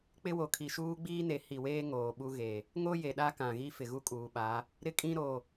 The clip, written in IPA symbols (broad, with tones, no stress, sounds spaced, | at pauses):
k͡p ɪ˦ w o˨ kʰ i˨ ʃ uː˦ ɡ͡b iː˦ n e˨˦ h i˨ w eː˦ ŋ oː˨ ɓ u˦ ɣ e˨ | ŋ o˦ j e˨ ɗ a˦ k ã˨ ɣ i˦ f ɪ˨ ɣ u˦ kʼ uː˨ ɓ a˨˦ | ɾ ɪ˦ kʼ ĩ˦ ɾ o˨